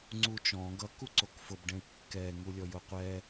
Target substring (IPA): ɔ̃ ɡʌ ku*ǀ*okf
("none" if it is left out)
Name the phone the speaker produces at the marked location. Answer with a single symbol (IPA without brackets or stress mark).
ǀ